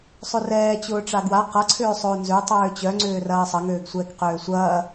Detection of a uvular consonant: present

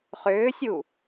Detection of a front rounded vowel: present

